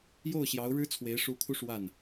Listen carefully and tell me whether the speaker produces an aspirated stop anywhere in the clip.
yes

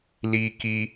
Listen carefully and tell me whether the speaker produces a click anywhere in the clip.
no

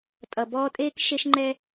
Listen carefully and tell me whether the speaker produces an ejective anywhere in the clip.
yes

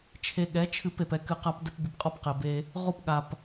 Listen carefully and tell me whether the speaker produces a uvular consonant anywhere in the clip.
yes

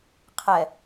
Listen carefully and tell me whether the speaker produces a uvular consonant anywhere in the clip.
yes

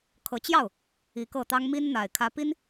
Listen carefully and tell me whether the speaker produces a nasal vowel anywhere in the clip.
no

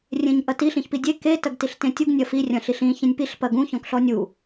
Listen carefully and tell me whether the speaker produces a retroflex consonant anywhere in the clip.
no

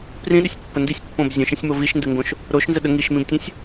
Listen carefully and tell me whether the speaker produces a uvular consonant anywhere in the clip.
no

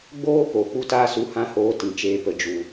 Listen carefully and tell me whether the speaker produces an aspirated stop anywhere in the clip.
no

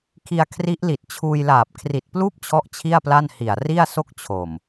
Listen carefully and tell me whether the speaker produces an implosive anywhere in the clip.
no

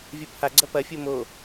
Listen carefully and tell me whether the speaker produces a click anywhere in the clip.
yes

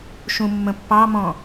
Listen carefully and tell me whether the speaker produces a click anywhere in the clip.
no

